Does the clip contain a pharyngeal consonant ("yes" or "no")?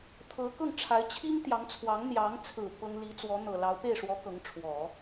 no